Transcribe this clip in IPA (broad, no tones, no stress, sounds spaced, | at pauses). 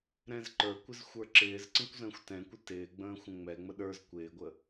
ɾ ɛ̃ z ǃ ə˞ kʷ ɪ z xʷ ə˞ ǁ ɪː z ǀ ə̃ kʷ z ə̃ː xʷ t ɛ̃ kʷ ɪ t ɪː ɡ͡b ə̃ː xʷ ə̃ ŋ͡m ɛ ŋ͡m ə ɗ ə˞ z kʷ ɪː ɡʷ ə